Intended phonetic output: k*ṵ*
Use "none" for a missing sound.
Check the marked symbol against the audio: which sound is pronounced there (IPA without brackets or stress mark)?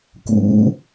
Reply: ṵ